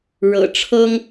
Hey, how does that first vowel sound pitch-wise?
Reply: low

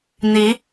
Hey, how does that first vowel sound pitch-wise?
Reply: rising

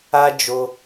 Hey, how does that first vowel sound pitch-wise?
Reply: high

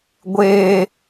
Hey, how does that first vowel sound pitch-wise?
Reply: low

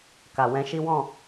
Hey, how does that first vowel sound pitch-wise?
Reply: low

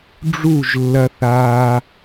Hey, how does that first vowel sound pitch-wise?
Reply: falling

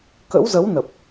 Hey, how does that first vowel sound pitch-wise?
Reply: rising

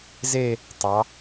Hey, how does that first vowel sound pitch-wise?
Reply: falling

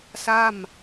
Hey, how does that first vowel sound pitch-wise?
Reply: falling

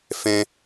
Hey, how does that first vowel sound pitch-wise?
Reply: high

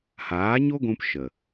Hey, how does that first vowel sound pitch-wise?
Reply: rising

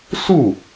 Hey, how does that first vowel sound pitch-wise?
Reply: falling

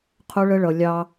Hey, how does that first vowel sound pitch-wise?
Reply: high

